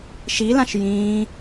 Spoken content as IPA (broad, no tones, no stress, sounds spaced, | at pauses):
ʃ i l ã ʃ j ĩː